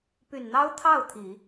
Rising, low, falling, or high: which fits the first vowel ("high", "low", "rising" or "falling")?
low